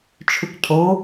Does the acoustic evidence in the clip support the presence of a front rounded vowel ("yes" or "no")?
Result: yes